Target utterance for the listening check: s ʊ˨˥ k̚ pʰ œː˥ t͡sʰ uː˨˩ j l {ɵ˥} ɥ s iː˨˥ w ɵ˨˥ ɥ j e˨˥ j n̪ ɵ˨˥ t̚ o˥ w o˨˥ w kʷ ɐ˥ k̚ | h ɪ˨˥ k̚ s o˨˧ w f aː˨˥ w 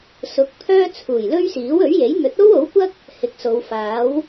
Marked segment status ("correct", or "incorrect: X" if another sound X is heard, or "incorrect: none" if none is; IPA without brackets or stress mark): correct